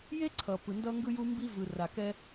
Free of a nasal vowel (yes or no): yes